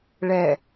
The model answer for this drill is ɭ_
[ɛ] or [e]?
ɛ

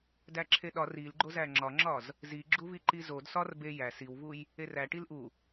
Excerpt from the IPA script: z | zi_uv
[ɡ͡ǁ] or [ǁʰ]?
ɡ͡ǁ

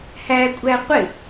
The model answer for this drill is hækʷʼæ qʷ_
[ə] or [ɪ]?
ɪ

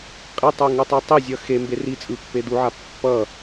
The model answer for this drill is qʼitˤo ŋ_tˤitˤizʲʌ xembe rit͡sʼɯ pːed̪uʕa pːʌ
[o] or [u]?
u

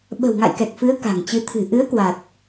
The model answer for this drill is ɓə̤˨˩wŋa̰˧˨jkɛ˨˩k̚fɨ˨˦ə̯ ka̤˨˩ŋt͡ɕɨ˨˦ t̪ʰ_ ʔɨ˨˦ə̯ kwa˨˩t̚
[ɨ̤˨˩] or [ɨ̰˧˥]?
ɨ̤˨˩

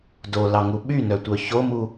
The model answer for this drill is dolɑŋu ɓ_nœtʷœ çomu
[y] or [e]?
y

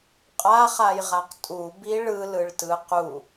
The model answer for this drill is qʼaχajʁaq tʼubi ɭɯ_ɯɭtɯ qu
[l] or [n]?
l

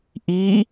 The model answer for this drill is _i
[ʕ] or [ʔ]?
ʔ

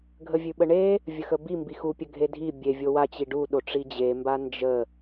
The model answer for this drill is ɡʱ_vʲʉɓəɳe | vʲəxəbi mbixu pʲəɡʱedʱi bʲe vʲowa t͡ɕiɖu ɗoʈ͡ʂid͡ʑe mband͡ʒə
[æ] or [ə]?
ə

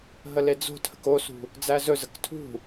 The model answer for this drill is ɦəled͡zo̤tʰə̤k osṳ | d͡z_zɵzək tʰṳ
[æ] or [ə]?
æ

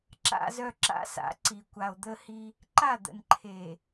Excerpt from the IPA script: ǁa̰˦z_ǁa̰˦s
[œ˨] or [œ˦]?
œ˦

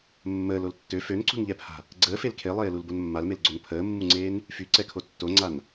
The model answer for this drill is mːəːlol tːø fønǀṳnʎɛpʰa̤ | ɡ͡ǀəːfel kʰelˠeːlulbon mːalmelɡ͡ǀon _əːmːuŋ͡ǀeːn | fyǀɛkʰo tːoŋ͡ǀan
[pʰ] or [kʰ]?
pʰ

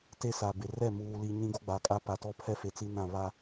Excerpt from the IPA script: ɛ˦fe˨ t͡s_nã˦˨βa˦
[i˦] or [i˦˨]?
i˦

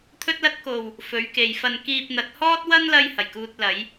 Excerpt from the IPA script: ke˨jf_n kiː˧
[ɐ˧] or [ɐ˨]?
ɐ˧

